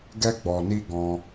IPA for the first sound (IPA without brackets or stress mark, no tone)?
ɡ